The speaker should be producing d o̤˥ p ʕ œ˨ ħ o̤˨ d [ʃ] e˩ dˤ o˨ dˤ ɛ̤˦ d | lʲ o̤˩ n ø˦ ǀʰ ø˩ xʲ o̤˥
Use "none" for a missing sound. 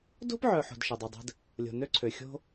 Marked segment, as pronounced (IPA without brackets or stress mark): ʃ